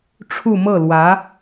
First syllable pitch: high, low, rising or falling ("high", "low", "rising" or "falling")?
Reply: falling